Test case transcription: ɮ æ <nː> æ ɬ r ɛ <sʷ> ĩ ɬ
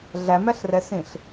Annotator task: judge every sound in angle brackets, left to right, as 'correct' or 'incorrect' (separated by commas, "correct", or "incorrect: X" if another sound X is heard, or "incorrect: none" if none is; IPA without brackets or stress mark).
incorrect: m, incorrect: s